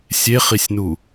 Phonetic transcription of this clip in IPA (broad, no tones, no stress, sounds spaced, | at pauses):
sʲ e χ i sʲ n u